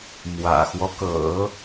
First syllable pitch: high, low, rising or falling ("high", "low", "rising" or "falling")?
low